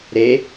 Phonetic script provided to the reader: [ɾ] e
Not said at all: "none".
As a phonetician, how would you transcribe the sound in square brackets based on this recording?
ɾ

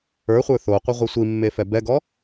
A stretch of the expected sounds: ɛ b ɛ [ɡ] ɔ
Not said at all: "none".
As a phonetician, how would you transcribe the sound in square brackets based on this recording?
ɡ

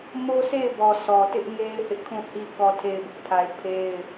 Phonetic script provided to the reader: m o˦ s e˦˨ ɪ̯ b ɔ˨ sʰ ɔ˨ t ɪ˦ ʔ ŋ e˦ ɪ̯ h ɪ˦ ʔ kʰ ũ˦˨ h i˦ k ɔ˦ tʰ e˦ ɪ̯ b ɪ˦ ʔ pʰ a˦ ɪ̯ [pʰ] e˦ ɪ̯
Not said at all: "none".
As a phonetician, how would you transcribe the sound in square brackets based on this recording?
pʰ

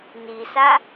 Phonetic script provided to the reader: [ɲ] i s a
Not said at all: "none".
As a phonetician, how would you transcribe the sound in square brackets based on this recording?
n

